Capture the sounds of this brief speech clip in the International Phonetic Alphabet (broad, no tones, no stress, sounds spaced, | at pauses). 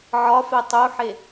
ʕ ɒ f e tˤ u ħ e